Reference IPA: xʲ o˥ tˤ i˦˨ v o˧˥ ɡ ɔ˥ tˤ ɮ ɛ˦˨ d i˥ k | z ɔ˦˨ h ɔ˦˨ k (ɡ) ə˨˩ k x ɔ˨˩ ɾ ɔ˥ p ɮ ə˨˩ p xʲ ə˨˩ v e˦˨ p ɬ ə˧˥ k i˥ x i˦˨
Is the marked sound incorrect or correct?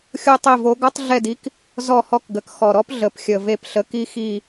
correct